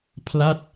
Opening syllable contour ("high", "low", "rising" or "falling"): falling